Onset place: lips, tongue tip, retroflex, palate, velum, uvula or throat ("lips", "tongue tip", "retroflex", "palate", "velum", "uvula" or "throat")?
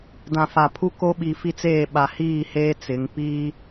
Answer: tongue tip